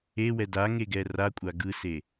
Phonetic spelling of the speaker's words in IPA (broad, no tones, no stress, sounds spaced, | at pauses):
e w ɛ d a ŋ e ɡ ɛ r a kʷʼ a ɡ ɯ s e